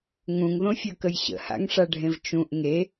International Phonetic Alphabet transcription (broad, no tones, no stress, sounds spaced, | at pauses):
ŋ ũ ŋ ð õ fʲ ə˞ k ə j ɕ ə̰ h a̰ ŋ ʂ a ɖʱ ẽ v t͡ʃ ũ ʔ ŋ e